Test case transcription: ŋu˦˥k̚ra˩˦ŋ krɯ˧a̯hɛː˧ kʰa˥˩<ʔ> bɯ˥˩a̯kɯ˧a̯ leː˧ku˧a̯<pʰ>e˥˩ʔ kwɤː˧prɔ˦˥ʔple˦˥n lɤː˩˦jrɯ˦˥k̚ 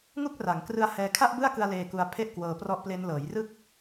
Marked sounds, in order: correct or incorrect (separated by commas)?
correct, correct